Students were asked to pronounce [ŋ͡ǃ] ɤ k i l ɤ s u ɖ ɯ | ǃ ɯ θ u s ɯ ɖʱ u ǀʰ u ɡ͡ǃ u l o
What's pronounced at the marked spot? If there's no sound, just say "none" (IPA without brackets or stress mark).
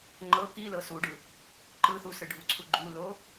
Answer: ŋ͡ǃ